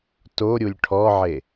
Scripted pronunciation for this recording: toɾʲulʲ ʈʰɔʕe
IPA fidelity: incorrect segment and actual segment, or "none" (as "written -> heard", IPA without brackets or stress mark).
none